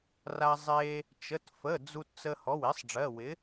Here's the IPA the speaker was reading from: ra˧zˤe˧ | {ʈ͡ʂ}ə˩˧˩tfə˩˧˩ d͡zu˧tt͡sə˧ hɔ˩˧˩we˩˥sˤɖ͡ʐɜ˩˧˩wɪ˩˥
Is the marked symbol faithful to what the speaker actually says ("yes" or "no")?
no